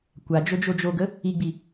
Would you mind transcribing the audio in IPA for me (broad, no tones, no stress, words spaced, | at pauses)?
kʷad͡ʒo d͡ʒod͡ʒoɡə | iɡ͡bi